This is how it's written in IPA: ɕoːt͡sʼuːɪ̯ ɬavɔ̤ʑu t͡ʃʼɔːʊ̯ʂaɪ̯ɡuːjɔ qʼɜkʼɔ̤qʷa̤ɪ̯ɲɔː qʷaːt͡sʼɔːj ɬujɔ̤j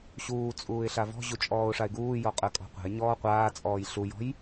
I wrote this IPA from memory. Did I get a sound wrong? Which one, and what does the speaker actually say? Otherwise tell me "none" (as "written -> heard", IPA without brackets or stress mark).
oː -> uː